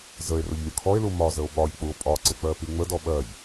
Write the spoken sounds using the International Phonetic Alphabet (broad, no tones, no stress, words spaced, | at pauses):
zəe̯rʊʎ lʲʊkʰɔe̯lu mɒzəo̯ ɓɒʎk͡puo̯ pʼɒǀɪ k͡pɜpiŋ͡mədɔ ɓɜʎ